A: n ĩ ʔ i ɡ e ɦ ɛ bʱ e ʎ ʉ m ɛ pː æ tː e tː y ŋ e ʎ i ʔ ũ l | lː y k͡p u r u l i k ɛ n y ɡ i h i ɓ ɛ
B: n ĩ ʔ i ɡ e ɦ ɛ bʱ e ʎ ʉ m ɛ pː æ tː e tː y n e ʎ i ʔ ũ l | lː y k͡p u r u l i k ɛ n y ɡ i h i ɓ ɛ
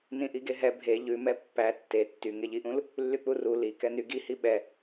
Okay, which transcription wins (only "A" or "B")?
A